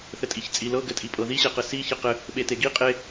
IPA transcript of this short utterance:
θ ɘ tʼ i ç t͡sʼ i l ɤ ɡ ɘ tʼ i pʼ ɤ ð i ɕ e q ɘ s i ç ɘ q ɘ | ɓ e t e ɡ i qʼ e

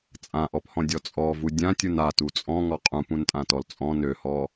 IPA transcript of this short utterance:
t͡sʼ ã ʔ ɔ p h ɔ̃ dʲ ɔ t͡sʼ ɔ v u dʲ ã tʲ u n a t u t͡sʼ ɔ̃ ŋ ɔ qʼ ũ p ũ n tʼ ã t ɔ l t͡sʼ ɔ̃ n ø h ɔ

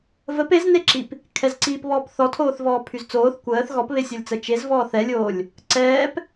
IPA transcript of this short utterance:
v ə p e z n e ǁ i p | kʰ ɛ z ǀ iː p β ɔː p θ ɔ tʰ oː θ v ɔː pʰ y z t͡s oː θ kʷ əː θ ɣ ɔ p β e sʲ ɔ lʲ t͡s ə t͡ʃ e z v ɔː θ ɛ lʲ oː lʲ | ǀ ɛː p

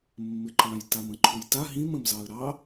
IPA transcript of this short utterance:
mː ɪ ǃ ɑ̃ j t a m ə̃ ǃʰ u j t a ɦ ĩ m ə̃ m z ɑ ə̯ ɾ ɑ

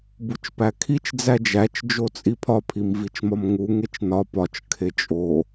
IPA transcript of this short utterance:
b u t͡ʃ p æ kʰ i t͡ʃ d͡z æ d͡ʒ æ t͡ʃ d͡ʒ o t͡sʼ i pʰ ɒ pʰ i m v i t͡ʃ m ɒ m ŋ u ŋ e t͡ʃ n ɒ p ɒ t͡ʃ kʰ e t͡ʃʼ o

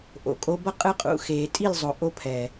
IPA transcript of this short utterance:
ʔ o̰˨ kʼ o˧ b ʌ˦ qʼ ɯ˧ qʼ ṵ˨ x eː˨ tʼ i˦˨ l zˤ o˨ ʔ o˧ pʰ ɛː˨

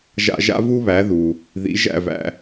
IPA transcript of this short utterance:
ʒ a̰˧ ʒ a̰˥ v u˥ β æ˩˥ ð u˩ | ð ḭ˩˥ ʒ æ̰˥˩ v æ̰˧

